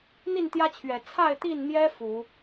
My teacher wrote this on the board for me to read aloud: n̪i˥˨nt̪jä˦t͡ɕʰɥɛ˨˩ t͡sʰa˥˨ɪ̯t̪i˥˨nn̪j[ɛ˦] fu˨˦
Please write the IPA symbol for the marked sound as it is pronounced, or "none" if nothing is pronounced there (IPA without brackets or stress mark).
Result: ɛ˦